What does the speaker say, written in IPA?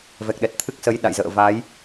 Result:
v ɛ˨˩ k̚ ɗ ɛ˨˩ t̚ t̪ʰ ɨ˦˥ k̚ s ə˨˦ j ɗ a̰˧˨ j z ə̰ː˧˨ v a˨˦ j

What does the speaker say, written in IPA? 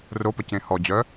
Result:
r o p ə c ẽ h ɔ d͡ʑ œ

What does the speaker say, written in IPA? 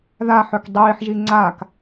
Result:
ð a ħ œ k dˤ iː ħ ʒ i ŋ͡ǀ a k

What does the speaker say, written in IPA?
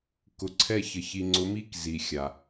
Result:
k ʊ˨ ǀʰ ɛ˦˨ ç ə˨ ç i˨ ŋ͡ǀ ʊ˨˦ m i˦ k z i˨ xʲ a˨

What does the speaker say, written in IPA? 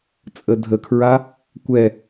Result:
t͡sʼ ə dʱ ə kʰ ɹ a | kʷ ɛ

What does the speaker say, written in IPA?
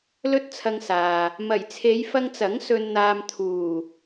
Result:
l ɵ˥ t̚ t͡sʰ ɐ˧ ŋ s aː˨ | m ɐ˨˩ j t͡sʰ e˨˧ j f ɐ˧ ŋ t͡s ɐ˨˥ ŋ s ɵ˧ n n̪ aː˧ m t̪ʰ uː˨˩

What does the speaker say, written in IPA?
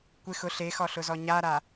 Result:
kʷ ɪ x ʊ ɬ e x ɔ ɬ ʊ z ɔ ɲ a ɾ a

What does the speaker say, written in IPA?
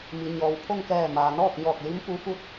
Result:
m i˩ ɲ ɔː˩ w pʰ o˥˨ ŋ k ɛː˧˩ m aː˩ n ɔː˥˨ k̚ ɲ ɔː˧˩ k̚ l i˧˥ m p u˧˥ f u˥˨ t̚

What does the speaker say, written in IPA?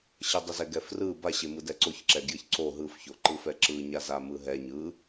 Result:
ɕ ə dˤ ə z ɛ ɡ ɛ f r ɯ b a ɕ e m ɯ d ɛ ǀ o ç ǁ ɛ ɡ j ə ç ǀ o ɦ ɯ f ç o ǃ ɯ f ɛ ǁ ɯ ɲ a z a m ɯ ɦ ɛ ɲ ɯ

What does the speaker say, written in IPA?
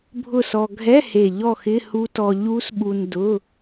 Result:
bʱ ʊ˥˨ s ɔ˧ ɡʱ ɛ˧˥˧ h e˨˩ ʎ ɔ˥˨ x ɪ˧˥˧ h u˦˥ t ɔ˧ ʎ u˦˥ s ɓ u˧ n d ʊ˧˥˧

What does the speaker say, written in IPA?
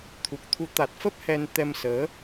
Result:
t̪ʰ u˨˩ k̚ t̪ʰ u˨˦ t̪ a˨˩ t̚ f ə˦˥ p̚ h ɛ˧ n t̪ ɛ˧ m s əː˨˦

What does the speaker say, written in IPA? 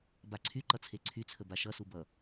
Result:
b a ǀʰ y ǃ ʌ t͡sʰ e ǀʰ y t͡sʰ ə b a ʃ ʌ s u b ʌ

